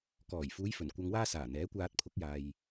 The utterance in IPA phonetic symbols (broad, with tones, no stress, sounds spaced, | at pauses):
k ɔː˨˩ j f uː˨˧ j f ɵ˨˩ n kʷ ɐ˧ ŋ w aː˥ s aː˨˩ n̪ ɛː˨˥ kʷ aː˧ t̚ pʰ ʊ˨˥ k̚ j aː˨ j